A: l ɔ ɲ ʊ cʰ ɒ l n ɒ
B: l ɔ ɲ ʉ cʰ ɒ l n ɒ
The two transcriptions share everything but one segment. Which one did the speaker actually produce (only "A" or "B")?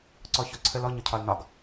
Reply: A